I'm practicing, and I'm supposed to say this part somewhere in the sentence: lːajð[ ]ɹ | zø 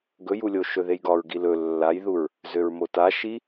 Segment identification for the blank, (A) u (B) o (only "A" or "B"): A